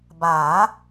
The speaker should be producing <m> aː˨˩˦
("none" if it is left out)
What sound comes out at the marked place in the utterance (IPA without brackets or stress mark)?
b